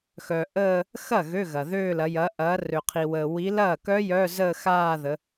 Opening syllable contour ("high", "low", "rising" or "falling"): low